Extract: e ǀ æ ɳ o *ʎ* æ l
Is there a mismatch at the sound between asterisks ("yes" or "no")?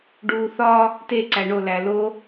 yes